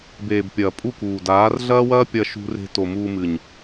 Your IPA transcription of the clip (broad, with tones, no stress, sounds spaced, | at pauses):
b eː˨ b pʲ ɐː˨ pʼ u˦˨ k uː˨ d aː˨˦ r ɮ ɐː˦ w ɐː˦ pʲ ɐ˧ ʃ ṳ˦ r e̤˦ t o˨ m uː˧ m ɨ˨ ɲ